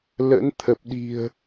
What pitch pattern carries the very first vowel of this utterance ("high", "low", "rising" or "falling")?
rising